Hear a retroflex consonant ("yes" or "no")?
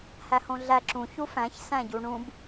yes